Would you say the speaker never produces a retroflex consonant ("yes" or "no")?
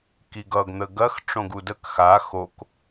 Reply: no